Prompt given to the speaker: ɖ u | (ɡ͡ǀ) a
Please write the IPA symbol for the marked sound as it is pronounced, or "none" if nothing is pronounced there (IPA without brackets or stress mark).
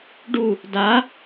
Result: d